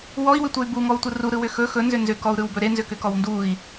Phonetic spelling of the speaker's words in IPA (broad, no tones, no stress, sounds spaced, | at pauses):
w ɔ i̯ w ʏ tʷ ɯ y̯ b u ŋ ɔ u̯ tʷ ɯ r u ɾ ɯ w ʏ x ɵ x ɵ n z ʏ n z ʏ k ɔ u̯ ɾ ɯ w b ɵ ɾ e n z ʏ k ʏ k ɔ w n d u i̯